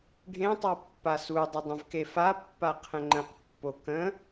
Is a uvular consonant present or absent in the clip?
present